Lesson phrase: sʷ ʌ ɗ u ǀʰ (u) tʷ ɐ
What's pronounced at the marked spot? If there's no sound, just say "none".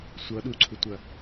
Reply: u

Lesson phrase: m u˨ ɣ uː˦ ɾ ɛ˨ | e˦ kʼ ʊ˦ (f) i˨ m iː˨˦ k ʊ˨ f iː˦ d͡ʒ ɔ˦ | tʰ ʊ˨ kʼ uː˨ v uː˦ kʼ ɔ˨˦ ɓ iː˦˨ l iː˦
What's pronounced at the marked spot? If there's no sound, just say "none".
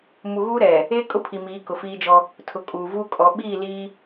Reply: pʰ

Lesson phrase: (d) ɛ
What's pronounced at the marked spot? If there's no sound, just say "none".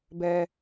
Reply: b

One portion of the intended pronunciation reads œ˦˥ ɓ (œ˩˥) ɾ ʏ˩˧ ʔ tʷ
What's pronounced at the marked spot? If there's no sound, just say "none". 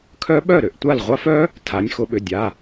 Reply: œ˥˩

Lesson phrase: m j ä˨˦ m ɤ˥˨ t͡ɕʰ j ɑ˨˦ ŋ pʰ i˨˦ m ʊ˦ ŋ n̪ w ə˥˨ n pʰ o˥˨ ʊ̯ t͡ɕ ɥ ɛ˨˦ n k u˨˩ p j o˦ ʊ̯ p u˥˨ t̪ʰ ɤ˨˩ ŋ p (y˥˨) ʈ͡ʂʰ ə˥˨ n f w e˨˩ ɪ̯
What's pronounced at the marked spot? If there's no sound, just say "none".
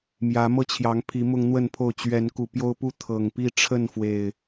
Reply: i˥˨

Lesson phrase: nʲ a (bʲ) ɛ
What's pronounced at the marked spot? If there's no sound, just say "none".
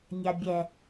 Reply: bʲ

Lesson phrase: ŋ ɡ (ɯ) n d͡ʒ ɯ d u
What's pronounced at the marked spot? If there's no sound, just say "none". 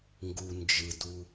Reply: u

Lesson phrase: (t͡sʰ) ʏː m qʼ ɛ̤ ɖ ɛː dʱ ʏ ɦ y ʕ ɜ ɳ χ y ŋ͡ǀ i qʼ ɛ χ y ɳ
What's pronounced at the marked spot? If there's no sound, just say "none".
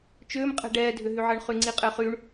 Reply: t͡ʃ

